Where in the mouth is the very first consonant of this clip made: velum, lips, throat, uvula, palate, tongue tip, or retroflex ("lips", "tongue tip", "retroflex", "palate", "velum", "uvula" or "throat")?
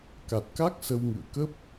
velum